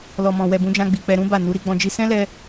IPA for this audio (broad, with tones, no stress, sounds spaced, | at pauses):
l ɔ˨ m ɔ̃˨ w ɛ˨ b ũ˨˦ d͡ʒ ã˧ ɡ͡b i˨ k͡p ɛ˧ ɾ ũ˦ b a˦˨ n u˨˦ ɾ i˧ ɡ͡b ɔ̃˧ d͡ʒ i˧ s ɛ̃˦ l ɛ˧